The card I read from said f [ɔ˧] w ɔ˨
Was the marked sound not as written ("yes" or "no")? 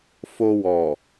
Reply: yes